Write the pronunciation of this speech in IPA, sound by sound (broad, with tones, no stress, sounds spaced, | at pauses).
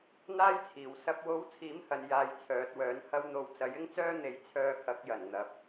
n̪ aː˥ j t͡sʰ iː˨˩ w s ɐ˨ p̚ w o˨˥ w t͡sʰ iː˨˥ m h ɐ˨ n j aː˨˧ j t͡sʰ œː˨ t̚ w œː˨˥ n h ɐ˧ w n̪ o˨˧ w t͡s ɐ˨˥ j ɪ˥ ŋ t͡s œː˥ n̪ e˨˧ j t͡sʰ œː˧ kʰ ɐ˨˥ k̚ j ɐ˨˩ n n̪ ɐ˨ p̚